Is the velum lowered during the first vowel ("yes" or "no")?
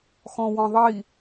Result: yes